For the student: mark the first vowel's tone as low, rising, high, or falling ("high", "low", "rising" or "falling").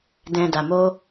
low